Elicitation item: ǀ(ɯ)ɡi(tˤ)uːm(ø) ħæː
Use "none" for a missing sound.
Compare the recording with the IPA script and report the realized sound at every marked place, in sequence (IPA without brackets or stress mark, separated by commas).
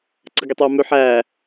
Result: ɯ, tˤ, ø